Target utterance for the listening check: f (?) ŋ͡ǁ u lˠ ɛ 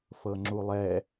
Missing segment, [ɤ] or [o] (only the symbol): ɤ